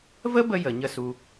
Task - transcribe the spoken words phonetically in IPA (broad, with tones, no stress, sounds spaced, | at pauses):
v ə˦ b ə˧ j ə˨ ɲ ə˦˨ s u˧